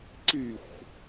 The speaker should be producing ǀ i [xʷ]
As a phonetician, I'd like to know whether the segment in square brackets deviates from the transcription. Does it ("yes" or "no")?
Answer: no